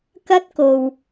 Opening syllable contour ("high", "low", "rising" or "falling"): high